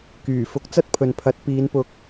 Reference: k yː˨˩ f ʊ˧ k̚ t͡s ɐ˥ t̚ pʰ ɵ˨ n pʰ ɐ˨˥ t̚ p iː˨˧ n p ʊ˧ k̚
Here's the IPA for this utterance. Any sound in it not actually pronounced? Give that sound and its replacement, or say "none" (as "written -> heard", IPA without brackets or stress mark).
none